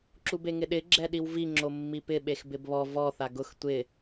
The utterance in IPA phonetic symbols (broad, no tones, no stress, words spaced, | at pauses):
ǁubeŋɪɗɪ ɡ͡ǁɛɗiwvi ŋ͡ǁomːipɪ ɓexbɪbβɔ vɔ θaɡʊx tʷɪ